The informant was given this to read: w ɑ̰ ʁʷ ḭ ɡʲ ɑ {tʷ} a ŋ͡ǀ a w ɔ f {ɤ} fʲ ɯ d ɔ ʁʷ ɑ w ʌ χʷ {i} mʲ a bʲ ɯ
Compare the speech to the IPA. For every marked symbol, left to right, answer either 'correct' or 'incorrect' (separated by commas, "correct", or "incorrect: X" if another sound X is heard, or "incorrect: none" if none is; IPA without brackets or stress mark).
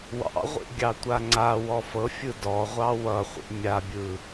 correct, correct, incorrect: ḭ